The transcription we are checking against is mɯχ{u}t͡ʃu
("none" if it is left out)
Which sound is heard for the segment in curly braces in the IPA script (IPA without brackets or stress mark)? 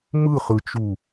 ɯ